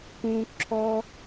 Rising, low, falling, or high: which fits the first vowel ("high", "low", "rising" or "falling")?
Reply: high